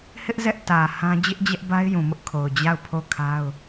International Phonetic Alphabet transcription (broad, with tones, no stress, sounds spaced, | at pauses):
h ɪ˦ ʔ z ɛ˦ ʔ t ä˨ h ã˦ d͡ʑ ɪ˦ ʔ d͡ʑ ɛ˦ ʔ b a˦ ɪ̯ j ũ˨ m ʊ˦ ʔ kʰ o˨ ʊ̯ d͡ʑ a˦˨ ʊ̯ pʰ o˦˨ kʰ a˦ ʊ̯